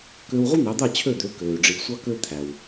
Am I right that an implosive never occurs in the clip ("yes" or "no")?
yes